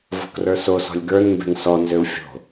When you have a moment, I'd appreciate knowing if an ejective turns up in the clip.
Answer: no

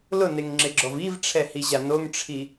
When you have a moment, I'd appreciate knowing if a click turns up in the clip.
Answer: yes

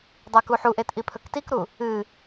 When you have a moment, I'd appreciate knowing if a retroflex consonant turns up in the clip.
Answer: no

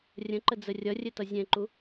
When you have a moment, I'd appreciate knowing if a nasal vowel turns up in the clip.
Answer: yes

